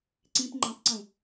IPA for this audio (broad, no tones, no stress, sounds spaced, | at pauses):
ǀ ĩ p ŋ͡ǃ ẽ tˤ ǀ ũ